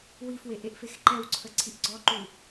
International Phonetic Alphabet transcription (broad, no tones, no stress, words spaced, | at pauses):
wifweʔeʔfex ǃɛwǀʰəǀʰiʔ ɡ͡ǀɔǃu